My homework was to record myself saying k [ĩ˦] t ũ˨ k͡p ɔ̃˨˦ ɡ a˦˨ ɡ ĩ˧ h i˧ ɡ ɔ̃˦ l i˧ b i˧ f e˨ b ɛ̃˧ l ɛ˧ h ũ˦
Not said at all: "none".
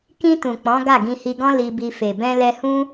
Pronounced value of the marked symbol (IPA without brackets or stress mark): ĩ˧